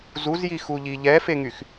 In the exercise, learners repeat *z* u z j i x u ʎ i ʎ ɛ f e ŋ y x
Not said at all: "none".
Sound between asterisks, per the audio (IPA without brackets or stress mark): z